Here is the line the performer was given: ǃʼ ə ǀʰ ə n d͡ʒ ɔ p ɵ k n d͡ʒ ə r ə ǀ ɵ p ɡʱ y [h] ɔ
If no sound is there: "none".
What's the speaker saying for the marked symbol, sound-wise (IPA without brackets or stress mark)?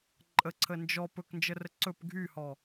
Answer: h